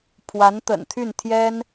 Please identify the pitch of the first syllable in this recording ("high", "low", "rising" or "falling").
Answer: rising